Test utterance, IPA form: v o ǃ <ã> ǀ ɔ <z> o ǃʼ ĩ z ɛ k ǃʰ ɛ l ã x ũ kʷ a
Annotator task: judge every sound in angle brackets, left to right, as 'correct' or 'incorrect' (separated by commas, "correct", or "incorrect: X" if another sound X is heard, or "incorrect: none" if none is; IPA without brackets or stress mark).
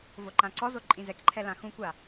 correct, correct